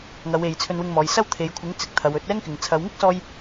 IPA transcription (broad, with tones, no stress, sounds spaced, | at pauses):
ŋ ɐ˨˧ w e˨ j t͡sʰ ɵ˧ n w ɪ˧ ŋ m ɔː˨˧ j s ɐ˥ w t̪ʰ e˨˧ j kʷʰ ɪ˨˥ ŋ t͡s ɪ˨ k̚ t̪ʰ ɐ˨˧ w ɵ˨˥ t̚ ɛː˥ ŋ k ɪ˨ ŋ t͡sʰ ɐ˨˧ w ŋ ɪ˥ k̚ s ɔː˧ j